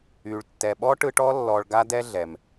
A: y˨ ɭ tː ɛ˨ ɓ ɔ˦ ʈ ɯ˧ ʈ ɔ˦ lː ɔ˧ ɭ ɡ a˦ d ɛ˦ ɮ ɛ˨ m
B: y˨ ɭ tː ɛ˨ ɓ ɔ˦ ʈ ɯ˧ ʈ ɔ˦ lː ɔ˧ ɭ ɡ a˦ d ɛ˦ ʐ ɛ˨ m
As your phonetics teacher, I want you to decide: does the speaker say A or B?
A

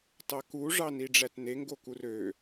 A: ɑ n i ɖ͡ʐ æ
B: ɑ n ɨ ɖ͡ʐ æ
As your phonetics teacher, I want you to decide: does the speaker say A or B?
A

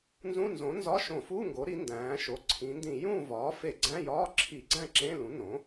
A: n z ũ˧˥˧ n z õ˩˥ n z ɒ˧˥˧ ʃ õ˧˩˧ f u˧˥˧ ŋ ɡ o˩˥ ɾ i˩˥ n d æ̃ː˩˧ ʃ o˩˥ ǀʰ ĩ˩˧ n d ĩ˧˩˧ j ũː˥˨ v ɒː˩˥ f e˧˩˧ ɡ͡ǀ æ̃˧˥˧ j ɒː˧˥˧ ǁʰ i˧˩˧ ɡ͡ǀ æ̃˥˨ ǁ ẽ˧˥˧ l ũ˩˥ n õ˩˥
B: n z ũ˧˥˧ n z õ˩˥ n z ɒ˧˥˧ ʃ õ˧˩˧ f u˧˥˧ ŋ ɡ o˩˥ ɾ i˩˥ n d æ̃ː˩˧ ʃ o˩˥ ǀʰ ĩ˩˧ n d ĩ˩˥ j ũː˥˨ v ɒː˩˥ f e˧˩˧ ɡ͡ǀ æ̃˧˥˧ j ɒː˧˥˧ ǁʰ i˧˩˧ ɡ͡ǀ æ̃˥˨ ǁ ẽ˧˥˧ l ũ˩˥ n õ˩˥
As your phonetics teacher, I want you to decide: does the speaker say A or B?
A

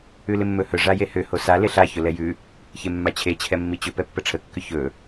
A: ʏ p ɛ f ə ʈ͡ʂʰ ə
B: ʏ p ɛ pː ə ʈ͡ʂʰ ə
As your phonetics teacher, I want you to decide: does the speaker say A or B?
B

